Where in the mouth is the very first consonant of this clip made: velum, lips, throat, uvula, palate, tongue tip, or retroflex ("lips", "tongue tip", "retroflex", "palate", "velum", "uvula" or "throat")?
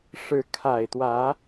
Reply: retroflex